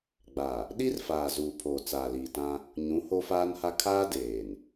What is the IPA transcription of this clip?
ɡ͡ba˨ | ɗi˦rfaː˨ zuː˨pʰoː˨ t͡saː˨liː˨tã˦ | ɲũ˨˦ ho˦faː˦nha˦ kʰaː˦ deː˨n

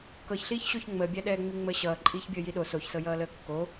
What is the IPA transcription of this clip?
kɤçɬiːçɕoç ŋ͡məːbʲæɗɛːŋ͡mi ŋ͡məːɕʌː ǃʼiːçbʲəːjiɗo soçsɤ jʌːləːkːo

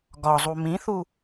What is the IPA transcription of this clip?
ɡɒzˤu mĩθu

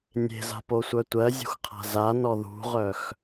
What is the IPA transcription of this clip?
nʲe̤za̤posʷœ tʷɜzʲṳxqʰa̤ zanɔ ðṳʁœx

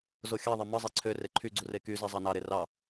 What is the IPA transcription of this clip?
zoxʲɑðˤe mɯzˤe ǀʰø reǃʰyɡ͡ǀu rekyze zˤɑnɑɾe rɑ

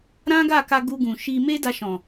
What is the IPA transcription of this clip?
ɾã˦ɡa˦˨ka˧ ɡu˧ɡũ˨ ʃi˧ me˦da˧ʃɔ̃˨

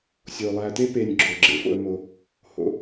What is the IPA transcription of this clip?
sʲo˩ lˠæ˨te˥pe˨nʲ ɡ͡ǁo˩ɡ͡ǁḛ˩fo̰˨ə̯ mo˩ | ho̰˩

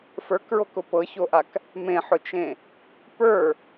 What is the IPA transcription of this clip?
fə˞kɹokʊ pɤçoʔak | mẽħʊt͡ʃẽ | pə˞

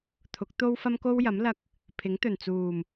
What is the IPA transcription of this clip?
t̪ʰʊ˨˥k̚t̪o˥wfɐ˥m ko˥wjɐ˨˥mlɐ˧k̚ | pʰɪ˨˥ŋt̪ɵ˨˩nt͡suː˨˩m

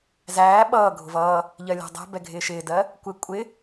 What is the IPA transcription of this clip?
zæː ɓʌː ɡʱʊvʌː | ʎɜlʲɛ̤dˤɛ̤ bɛɡʱɪːʃɪːdɜ | kʷɪ kʷʼɪ

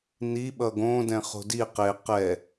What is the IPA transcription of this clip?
ni ɓʌɡõ dɛ̃χo̤di qe qɛ

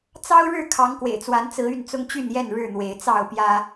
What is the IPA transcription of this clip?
t͡sɑ˦ʊ̯ɻɻ̩˥˨ kʰɑ˨˦ŋkwḛ˨˩ɪ̯t͡swa˨˦nt͡sɹ̩˨˦ y˥˨nt͡sʊ˦ŋt͡ɕy˥˨njɛ˥˨n ɻɻ̩˥˨n̪we˨˦ɪ̯ t͡sɑ˥˨ʊ̯pjä˦

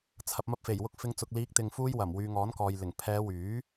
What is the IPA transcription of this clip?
t͡sʰɐ˨p̚mɐ˧p̚fe˨˩j wʊ˧k̚fɪ˨˧ŋt͡sʊ˨k̚ liː˨˥k̚t̪ɪ˨ŋfuː˧jwɐ˨˩m wyː˨ŋɔː˨˥nkɔː˨j lɪ˨˩ŋ pʰɛː˨˧wyː˨˥

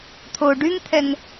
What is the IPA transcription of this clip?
t̪ʰo ɖyŋt̪ʰɛŋ

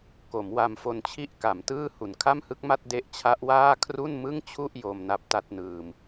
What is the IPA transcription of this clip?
ko˩˦mwa˧mfo˧nt͡ɕʰi˥˩ʔ ka˩˦mtɯː˥˩hu˨˩n kʰa˥˩mhɯ˦˥k̚ma˥˩t̚ de˦˥ʔt͡ɕʰa˦˥ʔwaː˥˩ kʰru˥˩nmɯ˥˩ŋt͡ɕʰu˥˩ʔ jo˧m na˦˥p̚ta˥˩t̚nɯː˧m

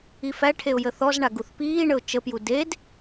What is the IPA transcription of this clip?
ifæʈʰeʊ̯ jəθɔzɳaɡ uθpiːɳəʊ̯ t͡ʃəpju ded

